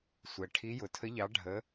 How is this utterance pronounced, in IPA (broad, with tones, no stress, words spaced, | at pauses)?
sʷɛ˨ʈʰi˧˥ jʊ˨tʰə˧˥ʎɑ˧˥ ɖʱə˧˥